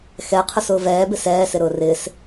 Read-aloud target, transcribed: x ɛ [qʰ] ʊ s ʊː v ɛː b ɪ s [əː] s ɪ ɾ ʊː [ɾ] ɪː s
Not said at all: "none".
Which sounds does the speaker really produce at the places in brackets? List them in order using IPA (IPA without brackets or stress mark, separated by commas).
qʰ, ɛː, r